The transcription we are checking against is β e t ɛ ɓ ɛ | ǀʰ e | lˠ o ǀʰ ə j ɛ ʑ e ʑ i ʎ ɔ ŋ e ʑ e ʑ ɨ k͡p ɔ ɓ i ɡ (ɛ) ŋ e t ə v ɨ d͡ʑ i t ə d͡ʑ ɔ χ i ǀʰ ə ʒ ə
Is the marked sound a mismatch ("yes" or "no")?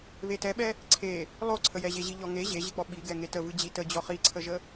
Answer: no